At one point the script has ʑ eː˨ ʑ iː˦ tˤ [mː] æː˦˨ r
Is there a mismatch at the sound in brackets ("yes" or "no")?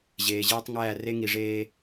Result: yes